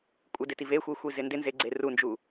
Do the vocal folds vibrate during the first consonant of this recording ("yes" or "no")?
no